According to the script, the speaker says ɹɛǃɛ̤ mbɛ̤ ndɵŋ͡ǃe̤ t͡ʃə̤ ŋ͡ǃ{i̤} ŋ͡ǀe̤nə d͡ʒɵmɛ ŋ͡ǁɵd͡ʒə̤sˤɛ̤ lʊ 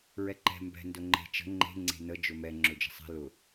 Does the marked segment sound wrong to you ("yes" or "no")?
yes